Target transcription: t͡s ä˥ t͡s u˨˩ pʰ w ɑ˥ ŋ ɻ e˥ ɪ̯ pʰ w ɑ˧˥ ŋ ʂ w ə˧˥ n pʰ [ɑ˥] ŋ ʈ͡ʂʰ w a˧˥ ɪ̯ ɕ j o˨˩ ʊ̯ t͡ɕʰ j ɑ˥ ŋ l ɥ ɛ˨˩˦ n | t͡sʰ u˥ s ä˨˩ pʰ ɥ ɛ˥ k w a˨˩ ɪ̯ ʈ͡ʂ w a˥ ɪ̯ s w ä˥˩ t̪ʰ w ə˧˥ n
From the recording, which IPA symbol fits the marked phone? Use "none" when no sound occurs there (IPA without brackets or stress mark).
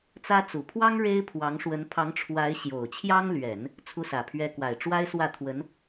ɑ˧˥